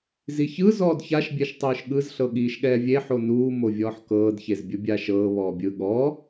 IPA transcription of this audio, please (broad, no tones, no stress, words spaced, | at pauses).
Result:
ziçɯ zɔːdçaʃ bʲɛʃtˤɯːʃɠɯz ɬɤɠiːʃɠɛːvʲe ħonuː movʲɔːħkɤːd çezbʲɯbʲaʃɤː βɔːbʲɯ ɠɔ